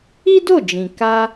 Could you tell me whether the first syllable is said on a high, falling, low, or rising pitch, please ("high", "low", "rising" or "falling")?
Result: high